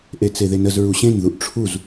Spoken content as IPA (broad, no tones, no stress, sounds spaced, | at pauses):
ʔ e t͡s e ð e n ə z ɹ u ɕ ẽ n ð u ʔ ʈ͡ʂʰ u z